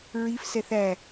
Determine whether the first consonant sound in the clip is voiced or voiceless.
voiced